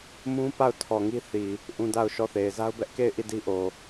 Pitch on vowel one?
high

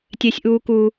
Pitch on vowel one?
high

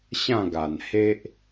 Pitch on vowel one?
falling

